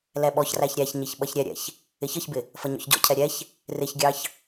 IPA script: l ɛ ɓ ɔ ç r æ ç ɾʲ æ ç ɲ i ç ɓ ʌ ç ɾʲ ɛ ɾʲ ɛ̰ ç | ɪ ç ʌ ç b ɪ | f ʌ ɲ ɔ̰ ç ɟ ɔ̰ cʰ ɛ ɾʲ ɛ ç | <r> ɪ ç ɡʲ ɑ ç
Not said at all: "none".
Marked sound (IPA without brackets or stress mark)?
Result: r